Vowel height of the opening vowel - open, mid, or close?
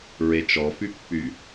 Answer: mid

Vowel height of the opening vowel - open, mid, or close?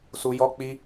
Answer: close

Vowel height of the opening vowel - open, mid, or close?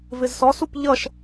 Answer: close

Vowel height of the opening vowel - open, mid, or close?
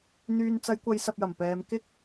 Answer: close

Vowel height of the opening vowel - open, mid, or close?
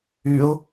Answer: close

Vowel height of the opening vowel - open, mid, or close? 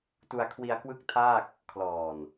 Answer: close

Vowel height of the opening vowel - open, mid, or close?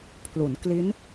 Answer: close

